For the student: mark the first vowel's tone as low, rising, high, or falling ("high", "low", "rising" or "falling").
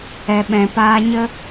low